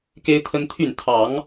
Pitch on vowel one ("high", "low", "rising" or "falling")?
high